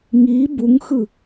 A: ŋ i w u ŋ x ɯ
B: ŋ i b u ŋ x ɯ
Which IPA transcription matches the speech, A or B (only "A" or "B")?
B